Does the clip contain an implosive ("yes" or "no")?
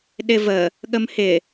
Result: yes